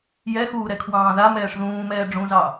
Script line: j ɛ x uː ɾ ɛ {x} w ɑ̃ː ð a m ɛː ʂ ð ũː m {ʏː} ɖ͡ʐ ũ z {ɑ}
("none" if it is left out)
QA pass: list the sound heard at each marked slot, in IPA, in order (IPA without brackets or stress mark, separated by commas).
kʰ, ɛː, ɑ